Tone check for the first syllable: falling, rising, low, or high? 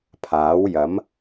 rising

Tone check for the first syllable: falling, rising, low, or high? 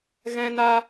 high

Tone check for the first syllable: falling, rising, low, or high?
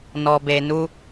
low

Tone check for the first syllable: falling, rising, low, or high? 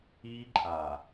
high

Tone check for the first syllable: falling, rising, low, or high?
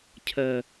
low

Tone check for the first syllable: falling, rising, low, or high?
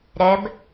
rising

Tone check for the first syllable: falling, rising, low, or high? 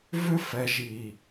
high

